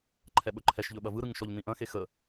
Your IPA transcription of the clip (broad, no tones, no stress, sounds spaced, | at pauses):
ǃʰ ɛ ɓ ɵ ǃʰ ɛ ʃ ʎ ɵ ɓ ɐ v ɯ ɾ ɯ ŋ ʃ ɔ ʎ n ĩ ʔ ɐ̃ x e x ə